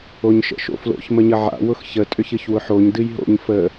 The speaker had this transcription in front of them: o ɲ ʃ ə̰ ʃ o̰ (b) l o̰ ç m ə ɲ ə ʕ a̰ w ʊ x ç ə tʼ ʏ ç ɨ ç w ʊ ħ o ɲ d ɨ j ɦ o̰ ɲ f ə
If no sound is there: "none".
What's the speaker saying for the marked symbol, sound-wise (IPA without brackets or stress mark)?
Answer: f